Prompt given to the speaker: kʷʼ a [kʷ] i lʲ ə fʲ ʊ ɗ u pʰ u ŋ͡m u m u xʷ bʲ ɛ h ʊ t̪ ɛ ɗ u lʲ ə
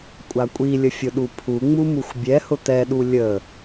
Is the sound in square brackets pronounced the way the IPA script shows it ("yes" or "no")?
no